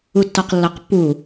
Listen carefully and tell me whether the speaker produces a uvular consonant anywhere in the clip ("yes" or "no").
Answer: yes